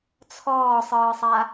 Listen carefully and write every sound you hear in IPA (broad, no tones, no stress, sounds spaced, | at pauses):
t͡sʰ ɔː sˤ ɯː sˤ a